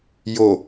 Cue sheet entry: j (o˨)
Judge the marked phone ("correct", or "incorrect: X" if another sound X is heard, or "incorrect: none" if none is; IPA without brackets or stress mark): correct